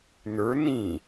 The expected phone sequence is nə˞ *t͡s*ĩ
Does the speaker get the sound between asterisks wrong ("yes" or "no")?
yes